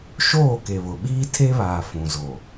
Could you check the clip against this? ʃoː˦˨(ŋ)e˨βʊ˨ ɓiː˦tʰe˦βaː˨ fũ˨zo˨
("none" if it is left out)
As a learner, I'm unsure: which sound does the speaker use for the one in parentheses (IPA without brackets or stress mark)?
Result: k